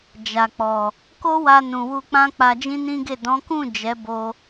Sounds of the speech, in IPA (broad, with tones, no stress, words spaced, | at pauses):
d͡ʒa˨k͡pɔ˨ | ko˦wa˧ nũ˨wu˧k͡pã˦ k͡pa˧d͡ʒĩ˦nĩ˦ɡe˦˨ dɔ̃˨˦kũ˦˨ d͡ʒɛ˨˦bo˧